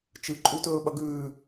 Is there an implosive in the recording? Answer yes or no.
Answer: yes